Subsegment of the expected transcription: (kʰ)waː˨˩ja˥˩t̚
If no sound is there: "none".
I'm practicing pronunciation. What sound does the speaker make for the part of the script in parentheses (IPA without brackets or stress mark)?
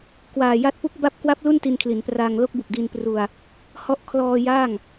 k